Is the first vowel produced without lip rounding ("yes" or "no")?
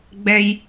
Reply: yes